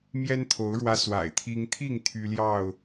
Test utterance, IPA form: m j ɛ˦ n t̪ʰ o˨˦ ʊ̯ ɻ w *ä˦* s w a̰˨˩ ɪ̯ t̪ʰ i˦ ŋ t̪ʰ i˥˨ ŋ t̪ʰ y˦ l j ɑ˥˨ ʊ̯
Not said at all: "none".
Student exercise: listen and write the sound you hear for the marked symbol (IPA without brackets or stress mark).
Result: ä˦